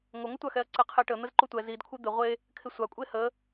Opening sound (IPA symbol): ŋʷ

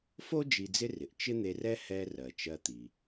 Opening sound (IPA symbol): f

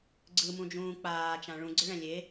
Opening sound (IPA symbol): ɡ͡ǀ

